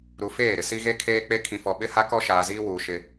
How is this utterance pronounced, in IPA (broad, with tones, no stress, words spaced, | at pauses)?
ɾu˨feː˦˨ɾɪ˨ si˦ɣe˦kʰeː˦ k͡pe˦ kʰĩ˨fɔ˨ ɓɪ˦ha˦kɔ˦ ʃaː˨ziː˦wuː˨ ʃɪ˦